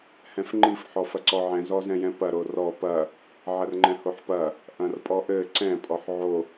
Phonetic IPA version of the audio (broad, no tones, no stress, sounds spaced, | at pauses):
h ɛ̃ f ŋ͡ǃ i f ħ ɔ f ɐ ǀ ɔ ʕ ɛ̃ z ɔ z ɛ̃ j ɛ̃ p ɐ ɾ o r ɔ p ɐ | ʕ ɐ r ŋ͡ǃ ɛ̃ h o ħ p ɐ | ʔ ɐ̃ r pʼ ɔ ʔ ɘ ǀ ɛ̃ pʼ ɔ ħ ʕ o